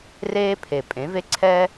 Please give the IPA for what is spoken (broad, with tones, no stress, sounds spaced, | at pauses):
r eː˦ pʰ e˨ pʼ ẽ˨˦ v e˦ ǀʰ ɛː˦